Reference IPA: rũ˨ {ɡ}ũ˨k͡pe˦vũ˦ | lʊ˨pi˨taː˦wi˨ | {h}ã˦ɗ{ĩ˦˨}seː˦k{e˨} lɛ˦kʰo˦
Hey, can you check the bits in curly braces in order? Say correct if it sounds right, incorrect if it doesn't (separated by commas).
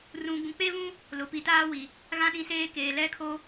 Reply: correct, incorrect, correct, incorrect